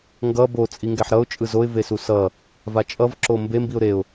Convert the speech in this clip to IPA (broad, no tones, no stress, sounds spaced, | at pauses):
ŋ ɡ ʌ b o t͡sʼ i ŋ ɡ ɛ ħ ɾ ʌ ʊ̯ t͡ʃʼ ɯ z o ɪ̯ v e s u s ʌ | v a t͡ʃʼ ʌ v ǁ o m b e m b i ʊ̯ ɾ e ʊ̯